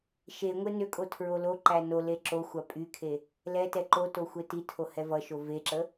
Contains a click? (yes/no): yes